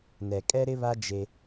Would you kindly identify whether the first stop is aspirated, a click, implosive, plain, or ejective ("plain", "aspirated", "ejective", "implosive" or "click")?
ejective